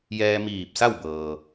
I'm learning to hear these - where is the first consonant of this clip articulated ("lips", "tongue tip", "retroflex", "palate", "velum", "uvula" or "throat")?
palate